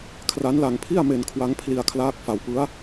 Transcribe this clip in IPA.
kʰra˦˥nla˧ŋpʰi˥˩a̯ me˧nkʰwa˦˥ŋ pʰli˧a̯kʰlaː˦˥k̚ fa˧wpɯ˦˥a̯

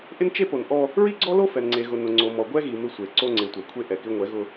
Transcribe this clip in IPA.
ʔɪ˦nt͡ʃe˦po˨nʔɔ˦ | ɹi˦ɡ͡ǀɔ˦lo˦ fɛ˨nŋ͡ǀe˨ɣʊ˨ nʊ˨ ŋ͡ǀo˨ mɔ˨ɡʷɛ˦ɣi˨ mɪ˦sʷe˨ ǀo˦ŋ͡ǀe˨tʷa˨kʷʰe˦ ʔɛ˨kɪ˦ ŋʷɛ˨˦ɣʊ˦

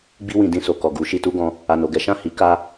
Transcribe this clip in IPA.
ɡ͡bi˧wĩ˨ dĩ˧so˨ kɔ˨ɡu˨˦ ʃi˧tu˦ɡɔ̃˧ | a˨no˨ɡɛ˨˦ ʃã˦˨hi˨˦ ka˦

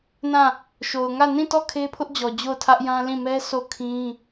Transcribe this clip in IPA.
nã˦˨ | ʃo˨ʊ̯ŋä˦˨ nĩ˦˨tɔ˦˨ kʰe˦pʰʊ˦ʔd͡ʑɔ˨ d͡ʑo˦˨ʊ̯tʰä˦ʔjã˦lĩ˦˨ mɛ˦so˦˨kʰĩ˦

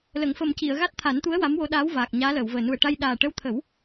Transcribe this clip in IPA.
lə˨˩˨ŋfə˨˩mci˨˩˨ə̯ ɣa˦˥t̚t̪ʰa˨˩˦nt̪u˧˥ə̯ wa˧˥mwo˧ɗaː˧˥wvaː˨˩k̚ ɲaː˧˥ləː˨˩˨wvəː˨˩ nu˨˩ə̯ʈa˧j ɗaː˨˩ ʈə˧˥wt̪ʰə˨˩˦w

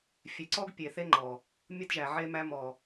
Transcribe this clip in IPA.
fʲe˨ǀɔ˦ɡ pʲe˨θe˦ŋ͡ǃɔ˨ | mʲə˦dʒæ˨ʕe˦mæ˦ mɔ˨

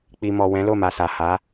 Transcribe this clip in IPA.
k͡pi˨mɔ˨ wɛ̃˨˦lo˦˨ma˨ sa˨ha˨˦

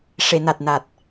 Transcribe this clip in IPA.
ʂe˨˩˨na˨˩t̚na˨˩t̚

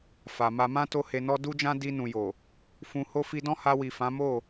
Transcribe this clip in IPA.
fa˨ma˧mã˦ to˦he˧nɔ˦ du˦d͡ʒã˦ di˧nũ˨jo˨ | fũ˧ho˦ fi˧dɔ̃˦ha˧wi˨ fã˨˦mo˦˨

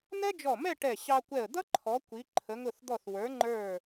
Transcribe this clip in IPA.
n̪ɛ˥d͡ʒɔ˧˩mɛ˥˧ ʈɛ˧˩ɕɑ˧kʷɛ˧˩ə̯ d̪ʌ˥ǃʰɔ˩˧ kʷi˩˧ ǃʰə˩˧ŋʊ˧˩θd̪ɔ˧˩θ wə˞˩˧ ŋ͡ǃə˞˧˩

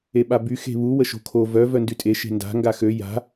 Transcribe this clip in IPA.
eɓaby xe̤βu wəʃo̤kʰo vœ vœndytʼe ʃe̤nda̤ ŋɡaxø ja̤

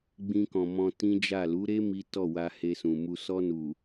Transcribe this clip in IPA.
ɡ͡bĩ˧kɔ̃˨ mɔ̃˧tĩ˦d͡ʒa˦˨ lu˨˦ɾe˦ mi˦tɔ˦˨wa˧ he˧sũ˨mu˧ sɔ˧nu˨

